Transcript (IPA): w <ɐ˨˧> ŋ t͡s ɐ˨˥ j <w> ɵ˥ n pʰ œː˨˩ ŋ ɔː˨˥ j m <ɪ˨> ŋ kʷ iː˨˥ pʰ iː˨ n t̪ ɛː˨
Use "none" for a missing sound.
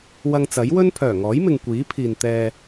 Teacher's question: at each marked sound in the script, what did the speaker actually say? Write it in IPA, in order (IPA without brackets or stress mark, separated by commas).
ɐ˧, w, ɪ˨